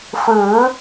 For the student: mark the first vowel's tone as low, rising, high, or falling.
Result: rising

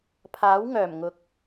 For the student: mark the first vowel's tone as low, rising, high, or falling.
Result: rising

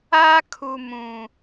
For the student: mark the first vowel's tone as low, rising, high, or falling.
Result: high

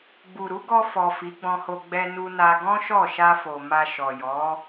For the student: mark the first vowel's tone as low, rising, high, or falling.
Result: low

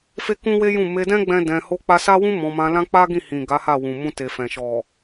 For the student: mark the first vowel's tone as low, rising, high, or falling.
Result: high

